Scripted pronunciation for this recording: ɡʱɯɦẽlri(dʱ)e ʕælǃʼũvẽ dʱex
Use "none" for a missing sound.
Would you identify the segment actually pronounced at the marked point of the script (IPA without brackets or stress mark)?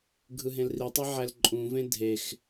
tˤ